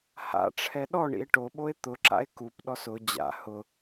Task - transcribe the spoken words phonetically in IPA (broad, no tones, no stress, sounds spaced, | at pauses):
h a̰ ʈ͡ʂʰ ɛ ɗ ɔ ɳ ḭ e̯ ʈ o ɓ o e̯ t̪ ʊ ǁ a̰ e̯ k u p ɗ ɔ s ʊ d͡ʑ a̰ h ʊ